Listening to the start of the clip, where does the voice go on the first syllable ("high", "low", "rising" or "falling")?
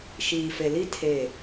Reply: low